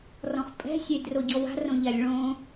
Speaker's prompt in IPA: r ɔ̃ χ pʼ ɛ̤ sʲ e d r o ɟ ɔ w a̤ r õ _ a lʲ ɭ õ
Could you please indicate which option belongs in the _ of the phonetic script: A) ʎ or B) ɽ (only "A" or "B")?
A